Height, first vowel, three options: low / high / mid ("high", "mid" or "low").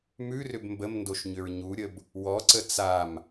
high